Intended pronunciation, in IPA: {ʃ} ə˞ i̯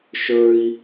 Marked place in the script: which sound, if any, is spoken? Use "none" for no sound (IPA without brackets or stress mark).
ʃ